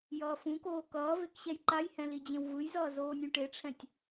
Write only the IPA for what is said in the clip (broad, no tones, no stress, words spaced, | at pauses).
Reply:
jʌːfũkoː kʌː vekɕɛjǃajhɛ̃ lid͡ʑẽwvɯjzʌː zoːnʲũʈeʈ͡ʂʰɛ̃tʲ